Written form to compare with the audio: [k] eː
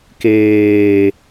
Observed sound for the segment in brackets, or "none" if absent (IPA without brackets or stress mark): k